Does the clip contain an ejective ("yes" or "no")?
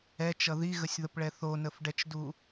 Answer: no